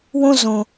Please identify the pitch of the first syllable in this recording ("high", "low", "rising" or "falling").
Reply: high